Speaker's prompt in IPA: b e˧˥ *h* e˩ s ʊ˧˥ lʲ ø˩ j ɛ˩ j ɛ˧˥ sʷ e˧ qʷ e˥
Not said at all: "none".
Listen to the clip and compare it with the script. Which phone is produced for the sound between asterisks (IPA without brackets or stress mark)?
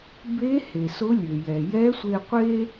h